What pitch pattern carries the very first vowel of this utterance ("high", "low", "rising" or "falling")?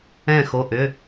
falling